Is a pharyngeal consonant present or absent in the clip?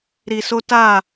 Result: absent